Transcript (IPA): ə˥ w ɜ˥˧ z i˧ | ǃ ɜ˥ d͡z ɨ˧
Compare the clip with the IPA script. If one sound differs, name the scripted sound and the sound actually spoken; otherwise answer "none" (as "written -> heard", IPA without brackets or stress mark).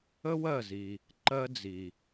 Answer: ɨ˧ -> i˧